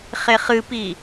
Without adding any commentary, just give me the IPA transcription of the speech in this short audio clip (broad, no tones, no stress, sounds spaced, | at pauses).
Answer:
χ e χ ɨ p i